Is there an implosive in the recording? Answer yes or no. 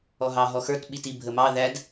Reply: yes